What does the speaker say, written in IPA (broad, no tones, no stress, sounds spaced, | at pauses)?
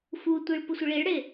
f u tʷ i ɭ p ʊ sʷ ɪ ɭ i ɭ ɽ e